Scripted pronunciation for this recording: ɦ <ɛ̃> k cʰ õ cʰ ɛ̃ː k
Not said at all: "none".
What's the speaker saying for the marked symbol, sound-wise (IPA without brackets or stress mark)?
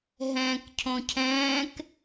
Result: ɛ̃ː